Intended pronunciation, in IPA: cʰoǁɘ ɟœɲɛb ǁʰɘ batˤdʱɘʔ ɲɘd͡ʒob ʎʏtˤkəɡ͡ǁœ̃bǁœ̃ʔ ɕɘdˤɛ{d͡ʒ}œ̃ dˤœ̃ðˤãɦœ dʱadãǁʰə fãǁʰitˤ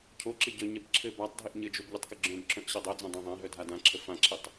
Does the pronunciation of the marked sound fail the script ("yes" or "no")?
yes